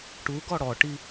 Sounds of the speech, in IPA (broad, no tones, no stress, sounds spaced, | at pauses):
ʈ u ɡ ɔ ɽ ɔ ʈ i